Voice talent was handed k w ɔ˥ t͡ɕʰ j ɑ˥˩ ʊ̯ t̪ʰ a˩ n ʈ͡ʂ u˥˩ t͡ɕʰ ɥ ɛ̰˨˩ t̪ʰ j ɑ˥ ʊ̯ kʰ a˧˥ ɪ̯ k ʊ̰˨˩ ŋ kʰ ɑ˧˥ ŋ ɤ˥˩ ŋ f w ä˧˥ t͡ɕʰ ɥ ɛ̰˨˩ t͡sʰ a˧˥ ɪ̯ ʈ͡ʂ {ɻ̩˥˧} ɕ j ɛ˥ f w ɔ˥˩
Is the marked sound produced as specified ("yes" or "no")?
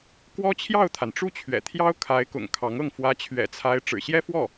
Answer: no